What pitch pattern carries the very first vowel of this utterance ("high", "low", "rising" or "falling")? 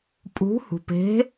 rising